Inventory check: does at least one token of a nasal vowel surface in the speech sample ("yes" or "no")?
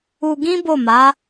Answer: yes